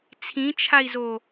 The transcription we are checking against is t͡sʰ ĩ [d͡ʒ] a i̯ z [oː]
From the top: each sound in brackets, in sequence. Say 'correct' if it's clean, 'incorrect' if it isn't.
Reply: incorrect: t͡ʃʰ, correct

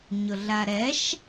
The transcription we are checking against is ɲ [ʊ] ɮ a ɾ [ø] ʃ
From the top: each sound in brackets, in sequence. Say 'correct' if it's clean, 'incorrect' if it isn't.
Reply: correct, incorrect: ɛ

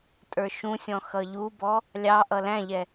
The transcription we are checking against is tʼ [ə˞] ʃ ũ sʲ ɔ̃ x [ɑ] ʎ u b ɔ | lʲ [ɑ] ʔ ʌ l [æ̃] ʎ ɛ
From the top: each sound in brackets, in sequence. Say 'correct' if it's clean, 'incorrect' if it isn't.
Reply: correct, incorrect: ʌ, correct, correct

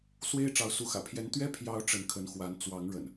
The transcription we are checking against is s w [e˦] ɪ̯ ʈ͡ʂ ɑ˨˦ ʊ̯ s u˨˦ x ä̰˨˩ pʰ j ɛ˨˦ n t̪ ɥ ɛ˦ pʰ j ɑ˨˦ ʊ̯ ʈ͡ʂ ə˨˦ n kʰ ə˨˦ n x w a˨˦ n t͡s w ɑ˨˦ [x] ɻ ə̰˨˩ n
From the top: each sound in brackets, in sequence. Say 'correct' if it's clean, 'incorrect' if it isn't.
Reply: correct, incorrect: ŋ

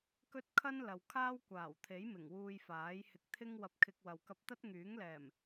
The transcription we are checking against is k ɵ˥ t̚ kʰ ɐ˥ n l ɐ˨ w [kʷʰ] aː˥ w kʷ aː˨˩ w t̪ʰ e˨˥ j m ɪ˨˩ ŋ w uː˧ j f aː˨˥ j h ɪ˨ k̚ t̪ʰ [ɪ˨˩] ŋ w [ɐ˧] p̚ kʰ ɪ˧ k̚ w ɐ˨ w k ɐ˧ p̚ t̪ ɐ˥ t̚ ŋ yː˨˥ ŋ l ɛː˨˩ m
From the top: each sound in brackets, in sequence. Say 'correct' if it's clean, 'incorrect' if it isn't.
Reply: incorrect: kʰ, incorrect: ɪ˥, correct

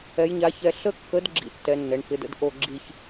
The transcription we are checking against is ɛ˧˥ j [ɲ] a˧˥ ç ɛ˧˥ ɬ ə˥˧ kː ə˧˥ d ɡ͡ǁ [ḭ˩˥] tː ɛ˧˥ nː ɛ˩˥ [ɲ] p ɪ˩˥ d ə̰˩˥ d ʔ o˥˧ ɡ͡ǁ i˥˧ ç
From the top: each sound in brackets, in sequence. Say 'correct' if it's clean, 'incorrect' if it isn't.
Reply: correct, incorrect: ḭ˥˧, incorrect: ɳ

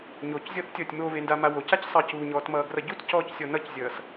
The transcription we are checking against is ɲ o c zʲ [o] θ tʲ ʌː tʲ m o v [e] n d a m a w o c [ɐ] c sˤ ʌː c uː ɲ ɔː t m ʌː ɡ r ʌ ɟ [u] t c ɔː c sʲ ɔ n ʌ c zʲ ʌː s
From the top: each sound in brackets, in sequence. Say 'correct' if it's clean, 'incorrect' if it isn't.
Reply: incorrect: ɔ, correct, incorrect: a, correct

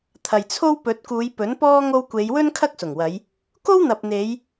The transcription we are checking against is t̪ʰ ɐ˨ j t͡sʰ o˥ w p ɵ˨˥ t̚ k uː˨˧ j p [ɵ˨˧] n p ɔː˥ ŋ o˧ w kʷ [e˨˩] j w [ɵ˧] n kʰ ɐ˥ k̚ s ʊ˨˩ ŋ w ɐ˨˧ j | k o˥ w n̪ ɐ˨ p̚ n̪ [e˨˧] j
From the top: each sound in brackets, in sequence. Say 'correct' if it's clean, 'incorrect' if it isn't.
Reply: incorrect: ɵ˨˥, incorrect: e˨˧, incorrect: ɵ˥, correct

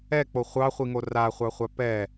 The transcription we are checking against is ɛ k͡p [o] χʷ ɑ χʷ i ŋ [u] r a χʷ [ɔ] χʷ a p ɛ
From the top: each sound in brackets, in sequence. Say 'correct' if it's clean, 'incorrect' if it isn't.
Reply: correct, incorrect: o, incorrect: ɑ

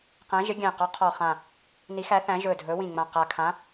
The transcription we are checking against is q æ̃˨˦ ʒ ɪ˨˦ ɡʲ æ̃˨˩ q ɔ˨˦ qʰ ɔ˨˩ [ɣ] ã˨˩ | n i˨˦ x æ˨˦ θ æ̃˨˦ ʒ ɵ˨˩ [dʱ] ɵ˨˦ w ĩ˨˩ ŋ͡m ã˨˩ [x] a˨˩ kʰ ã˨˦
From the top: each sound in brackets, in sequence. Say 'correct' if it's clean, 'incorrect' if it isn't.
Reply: incorrect: χ, correct, incorrect: q

